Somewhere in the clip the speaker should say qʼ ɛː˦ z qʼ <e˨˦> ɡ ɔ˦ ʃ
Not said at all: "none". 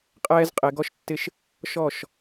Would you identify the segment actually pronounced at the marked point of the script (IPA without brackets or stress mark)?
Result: e˨˦